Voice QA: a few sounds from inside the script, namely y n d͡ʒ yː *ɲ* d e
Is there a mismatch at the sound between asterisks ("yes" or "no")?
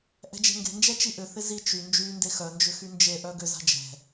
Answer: yes